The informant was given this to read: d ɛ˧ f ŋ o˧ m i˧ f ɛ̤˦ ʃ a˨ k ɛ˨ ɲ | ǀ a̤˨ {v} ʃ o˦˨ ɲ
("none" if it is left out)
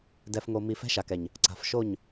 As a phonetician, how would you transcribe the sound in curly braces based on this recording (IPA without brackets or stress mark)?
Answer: f